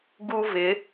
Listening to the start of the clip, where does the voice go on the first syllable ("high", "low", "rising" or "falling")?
high